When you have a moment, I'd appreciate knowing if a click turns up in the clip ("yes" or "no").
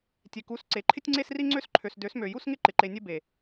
yes